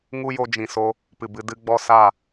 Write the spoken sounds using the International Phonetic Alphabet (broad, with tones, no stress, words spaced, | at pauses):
ŋu˦jo˧d͡ʒĩ˨so˧ | pɨ˨bɨ˧ dɨ˧ ɡ͡bɔ˧ sa˦˨